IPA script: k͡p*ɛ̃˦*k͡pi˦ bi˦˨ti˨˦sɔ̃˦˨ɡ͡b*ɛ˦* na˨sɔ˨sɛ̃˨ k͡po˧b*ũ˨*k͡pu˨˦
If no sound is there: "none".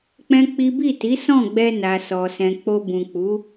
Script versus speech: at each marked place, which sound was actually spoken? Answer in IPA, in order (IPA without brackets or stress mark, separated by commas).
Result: ɛ̃˦, ɛ˧, ũ˨